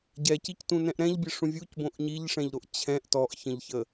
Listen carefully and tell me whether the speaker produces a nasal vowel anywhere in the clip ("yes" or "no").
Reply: yes